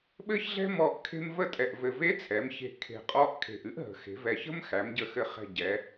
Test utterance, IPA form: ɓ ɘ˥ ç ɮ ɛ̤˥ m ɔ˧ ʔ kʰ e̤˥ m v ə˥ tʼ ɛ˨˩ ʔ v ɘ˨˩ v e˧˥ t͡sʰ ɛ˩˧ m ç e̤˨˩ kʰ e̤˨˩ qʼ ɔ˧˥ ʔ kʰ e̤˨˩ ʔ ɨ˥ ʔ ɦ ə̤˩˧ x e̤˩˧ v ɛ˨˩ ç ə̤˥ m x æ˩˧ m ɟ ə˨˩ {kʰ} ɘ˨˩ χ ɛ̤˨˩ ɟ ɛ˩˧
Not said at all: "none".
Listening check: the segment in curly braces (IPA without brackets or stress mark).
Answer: x